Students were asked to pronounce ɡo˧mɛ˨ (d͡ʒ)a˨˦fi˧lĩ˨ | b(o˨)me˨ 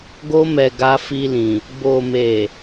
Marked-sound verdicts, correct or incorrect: incorrect: ɡ, correct

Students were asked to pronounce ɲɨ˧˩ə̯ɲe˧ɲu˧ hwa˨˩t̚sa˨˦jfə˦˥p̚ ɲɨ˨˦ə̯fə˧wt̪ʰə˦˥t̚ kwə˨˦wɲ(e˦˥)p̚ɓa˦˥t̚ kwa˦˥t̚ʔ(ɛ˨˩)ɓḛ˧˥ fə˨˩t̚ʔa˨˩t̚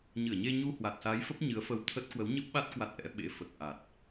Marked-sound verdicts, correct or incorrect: incorrect: ɨ˦˥, incorrect: ɛ̰˧˥

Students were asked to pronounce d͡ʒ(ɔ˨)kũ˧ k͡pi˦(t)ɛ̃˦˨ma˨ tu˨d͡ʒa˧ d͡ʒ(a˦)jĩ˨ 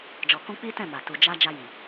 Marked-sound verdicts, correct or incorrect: correct, correct, incorrect: a˧

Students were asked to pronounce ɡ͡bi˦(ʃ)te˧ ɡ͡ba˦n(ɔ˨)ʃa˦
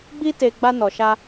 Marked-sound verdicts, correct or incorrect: incorrect: none, incorrect: ɔ˧

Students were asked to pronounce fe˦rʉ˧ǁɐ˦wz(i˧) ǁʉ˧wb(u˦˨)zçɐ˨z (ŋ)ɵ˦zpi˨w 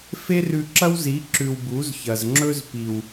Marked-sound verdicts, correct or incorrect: incorrect: i˨˦, incorrect: u˨˦, incorrect: ŋ͡ǁ

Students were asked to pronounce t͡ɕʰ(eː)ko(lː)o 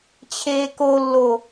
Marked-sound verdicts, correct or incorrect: correct, correct

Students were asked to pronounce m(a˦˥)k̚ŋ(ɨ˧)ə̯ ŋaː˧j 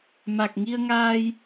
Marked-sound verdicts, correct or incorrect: incorrect: a˨˩, incorrect: i˧

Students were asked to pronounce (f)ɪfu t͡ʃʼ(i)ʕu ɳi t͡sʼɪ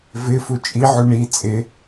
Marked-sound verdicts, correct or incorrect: incorrect: v, correct

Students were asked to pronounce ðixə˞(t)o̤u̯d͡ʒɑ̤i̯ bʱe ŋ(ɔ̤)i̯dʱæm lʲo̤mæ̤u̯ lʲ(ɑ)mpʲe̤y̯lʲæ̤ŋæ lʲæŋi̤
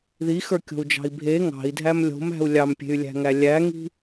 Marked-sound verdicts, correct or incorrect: incorrect: kʲ, incorrect: ɑ̤, correct

